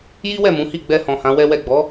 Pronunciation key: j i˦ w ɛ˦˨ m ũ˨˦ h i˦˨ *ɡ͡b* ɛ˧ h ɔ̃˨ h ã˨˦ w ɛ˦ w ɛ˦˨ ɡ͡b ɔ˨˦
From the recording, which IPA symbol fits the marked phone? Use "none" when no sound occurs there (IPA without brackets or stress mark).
ɡ͡b